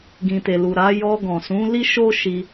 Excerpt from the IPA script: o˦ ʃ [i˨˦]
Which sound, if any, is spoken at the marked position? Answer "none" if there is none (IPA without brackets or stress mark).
i˧